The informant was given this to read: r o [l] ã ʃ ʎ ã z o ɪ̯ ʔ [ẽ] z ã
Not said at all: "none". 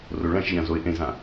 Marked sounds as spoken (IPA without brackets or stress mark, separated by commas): ɭ, ẽ